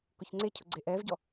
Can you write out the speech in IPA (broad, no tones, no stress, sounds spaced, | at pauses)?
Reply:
k ʊ ç ŋ͡ǀ e cʰ ʊ ɡ͡ǀ e ʔ ɛ v ɟ ɔ